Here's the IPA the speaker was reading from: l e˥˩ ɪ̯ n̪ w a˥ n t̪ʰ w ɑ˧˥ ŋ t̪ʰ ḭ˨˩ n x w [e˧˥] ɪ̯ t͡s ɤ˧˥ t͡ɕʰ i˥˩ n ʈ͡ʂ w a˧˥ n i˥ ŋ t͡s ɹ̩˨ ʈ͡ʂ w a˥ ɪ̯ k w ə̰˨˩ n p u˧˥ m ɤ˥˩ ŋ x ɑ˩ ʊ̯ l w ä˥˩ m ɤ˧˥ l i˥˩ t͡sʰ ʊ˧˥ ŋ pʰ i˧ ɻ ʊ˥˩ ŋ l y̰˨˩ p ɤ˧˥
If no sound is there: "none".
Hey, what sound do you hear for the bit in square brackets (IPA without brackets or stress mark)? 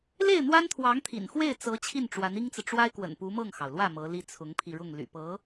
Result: e˥˩